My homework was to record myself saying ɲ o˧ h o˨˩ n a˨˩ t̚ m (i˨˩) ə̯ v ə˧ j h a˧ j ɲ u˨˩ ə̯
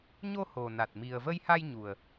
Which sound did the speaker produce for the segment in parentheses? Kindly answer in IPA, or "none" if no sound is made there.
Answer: i˨˩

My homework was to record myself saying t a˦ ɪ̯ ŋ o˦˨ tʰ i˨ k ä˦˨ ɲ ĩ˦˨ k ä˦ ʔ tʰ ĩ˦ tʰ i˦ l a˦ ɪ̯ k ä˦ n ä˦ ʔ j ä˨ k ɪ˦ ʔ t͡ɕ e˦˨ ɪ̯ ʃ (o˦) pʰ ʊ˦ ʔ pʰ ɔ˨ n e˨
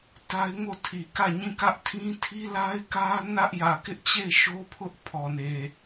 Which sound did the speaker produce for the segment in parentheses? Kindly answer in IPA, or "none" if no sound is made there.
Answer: o˦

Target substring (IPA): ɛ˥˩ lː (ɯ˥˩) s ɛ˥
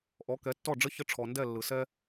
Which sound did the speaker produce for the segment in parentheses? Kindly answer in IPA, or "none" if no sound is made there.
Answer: ɯ˩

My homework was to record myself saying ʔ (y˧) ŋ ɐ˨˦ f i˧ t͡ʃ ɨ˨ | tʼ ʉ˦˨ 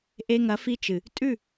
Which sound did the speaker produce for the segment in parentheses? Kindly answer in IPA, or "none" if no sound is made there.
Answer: e˧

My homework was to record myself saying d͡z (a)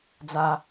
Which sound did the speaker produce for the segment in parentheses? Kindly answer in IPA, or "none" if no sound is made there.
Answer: a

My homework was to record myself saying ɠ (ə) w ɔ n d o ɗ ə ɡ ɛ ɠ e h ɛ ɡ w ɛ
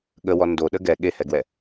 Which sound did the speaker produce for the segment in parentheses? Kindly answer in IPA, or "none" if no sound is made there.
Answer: ə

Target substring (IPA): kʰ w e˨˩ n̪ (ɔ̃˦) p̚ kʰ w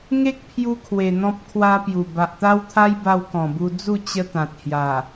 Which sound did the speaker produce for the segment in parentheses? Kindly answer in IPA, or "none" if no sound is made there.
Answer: ɔ̃˦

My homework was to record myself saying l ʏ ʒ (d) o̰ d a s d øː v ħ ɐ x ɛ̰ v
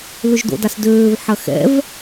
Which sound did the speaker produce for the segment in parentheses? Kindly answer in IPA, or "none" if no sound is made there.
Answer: d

